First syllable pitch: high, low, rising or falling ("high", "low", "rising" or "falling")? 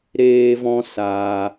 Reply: high